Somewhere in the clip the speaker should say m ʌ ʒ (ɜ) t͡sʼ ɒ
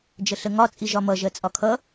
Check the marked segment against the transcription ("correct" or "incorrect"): correct